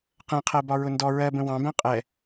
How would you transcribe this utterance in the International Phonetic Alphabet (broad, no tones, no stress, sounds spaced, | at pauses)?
q ɛ̃ qʰ ɜ b ɒ ɹ ʊ n d ɔ ɹ ɜ b ə̃ w ɑ̃ b æ̃ qʼ ɛ